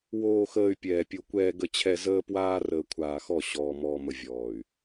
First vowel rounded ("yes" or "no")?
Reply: yes